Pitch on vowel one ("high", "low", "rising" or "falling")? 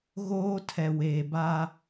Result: high